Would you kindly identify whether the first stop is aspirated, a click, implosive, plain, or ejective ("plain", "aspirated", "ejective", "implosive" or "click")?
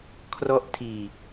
aspirated